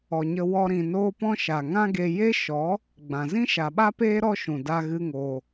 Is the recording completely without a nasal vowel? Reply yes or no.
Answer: no